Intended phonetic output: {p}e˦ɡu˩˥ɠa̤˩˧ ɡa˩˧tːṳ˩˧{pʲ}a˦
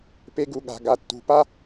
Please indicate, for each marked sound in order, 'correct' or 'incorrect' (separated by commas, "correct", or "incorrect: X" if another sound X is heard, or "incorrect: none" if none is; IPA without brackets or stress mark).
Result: correct, incorrect: p